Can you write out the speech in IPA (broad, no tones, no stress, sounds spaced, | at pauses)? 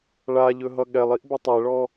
ɭ a ʎ ɵ ɦ ʌ ɠ ɛ lˠ i ʔ b ɵ tˤ ɛ ɭ ɔ